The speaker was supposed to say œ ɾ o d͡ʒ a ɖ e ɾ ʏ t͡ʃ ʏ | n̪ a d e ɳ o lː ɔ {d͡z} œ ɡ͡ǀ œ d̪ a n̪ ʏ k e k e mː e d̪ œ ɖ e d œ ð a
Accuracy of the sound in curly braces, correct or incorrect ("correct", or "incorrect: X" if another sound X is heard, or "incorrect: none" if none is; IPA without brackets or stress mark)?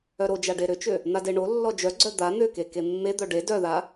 incorrect: d͡ʒ